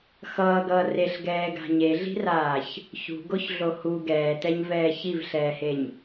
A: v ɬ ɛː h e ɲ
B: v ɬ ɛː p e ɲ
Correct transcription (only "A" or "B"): A